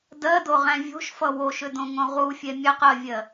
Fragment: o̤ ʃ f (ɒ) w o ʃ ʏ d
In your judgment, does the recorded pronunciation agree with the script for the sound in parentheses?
no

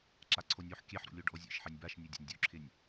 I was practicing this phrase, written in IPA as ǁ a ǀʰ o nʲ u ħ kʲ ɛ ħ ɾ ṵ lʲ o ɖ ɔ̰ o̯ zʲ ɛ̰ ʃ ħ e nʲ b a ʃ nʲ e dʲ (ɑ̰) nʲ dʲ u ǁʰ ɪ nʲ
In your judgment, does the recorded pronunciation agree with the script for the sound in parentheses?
no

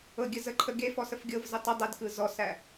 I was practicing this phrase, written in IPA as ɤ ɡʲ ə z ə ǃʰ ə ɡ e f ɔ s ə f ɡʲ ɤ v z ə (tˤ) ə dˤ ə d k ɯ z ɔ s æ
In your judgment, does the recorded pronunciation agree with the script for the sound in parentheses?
yes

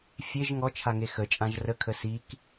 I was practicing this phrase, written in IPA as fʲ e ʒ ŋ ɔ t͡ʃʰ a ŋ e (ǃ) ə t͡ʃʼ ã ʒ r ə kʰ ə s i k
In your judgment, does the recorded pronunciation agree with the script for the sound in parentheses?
no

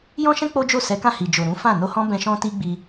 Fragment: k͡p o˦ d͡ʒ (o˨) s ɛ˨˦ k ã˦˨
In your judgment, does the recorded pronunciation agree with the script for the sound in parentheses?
no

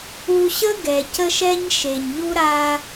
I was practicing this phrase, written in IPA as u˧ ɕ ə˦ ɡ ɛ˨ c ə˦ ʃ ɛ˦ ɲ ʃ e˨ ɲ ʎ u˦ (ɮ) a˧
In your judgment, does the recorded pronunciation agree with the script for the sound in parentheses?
no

